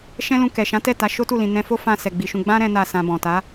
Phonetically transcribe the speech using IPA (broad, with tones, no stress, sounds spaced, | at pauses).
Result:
ʃ ɛ̃˦ l ũ˧ k ɛ˨ ʃ ã˨˦ t ɛ˦˨ t a˨˦ ʃ o˦ t u˦˨ l ĩ˨ n ɛ̃˧ f o˦ f ã˧ s ɛ˨ ɡ͡b i˨ ʃ ũ˧ ɡ͡b ã˦ ɾ ɛ̃˦ n a˦˨ s ã˧ b ɔ̃˨ t a˨˦